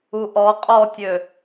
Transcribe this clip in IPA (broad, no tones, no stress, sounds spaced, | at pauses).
u ʔ ɔ qʼ ɔ tʲ ø